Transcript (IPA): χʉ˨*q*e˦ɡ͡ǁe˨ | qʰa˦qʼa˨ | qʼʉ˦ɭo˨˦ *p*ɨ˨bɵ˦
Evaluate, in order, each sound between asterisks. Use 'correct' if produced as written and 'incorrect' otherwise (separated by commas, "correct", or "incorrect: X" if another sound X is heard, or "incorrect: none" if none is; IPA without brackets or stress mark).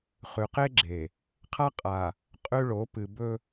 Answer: correct, correct